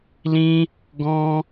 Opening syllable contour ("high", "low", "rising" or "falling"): high